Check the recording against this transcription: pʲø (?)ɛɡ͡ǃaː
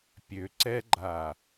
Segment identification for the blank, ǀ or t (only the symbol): ǀ